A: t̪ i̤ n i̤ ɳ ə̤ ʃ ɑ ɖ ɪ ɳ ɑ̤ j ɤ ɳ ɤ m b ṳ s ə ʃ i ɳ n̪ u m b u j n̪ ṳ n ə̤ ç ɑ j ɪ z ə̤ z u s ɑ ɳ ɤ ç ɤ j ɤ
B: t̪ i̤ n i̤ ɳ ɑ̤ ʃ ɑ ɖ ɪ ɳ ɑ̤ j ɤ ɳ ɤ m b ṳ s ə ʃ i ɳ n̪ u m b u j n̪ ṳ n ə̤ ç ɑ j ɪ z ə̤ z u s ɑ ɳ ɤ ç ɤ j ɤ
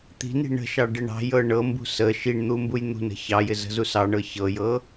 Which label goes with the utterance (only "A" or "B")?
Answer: A